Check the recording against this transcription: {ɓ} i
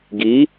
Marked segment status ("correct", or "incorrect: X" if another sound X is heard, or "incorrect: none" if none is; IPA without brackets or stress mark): incorrect: ɡ